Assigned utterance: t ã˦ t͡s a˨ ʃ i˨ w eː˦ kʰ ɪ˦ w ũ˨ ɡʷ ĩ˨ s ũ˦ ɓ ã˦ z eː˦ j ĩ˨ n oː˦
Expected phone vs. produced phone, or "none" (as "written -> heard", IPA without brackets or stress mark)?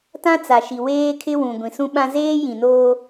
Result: none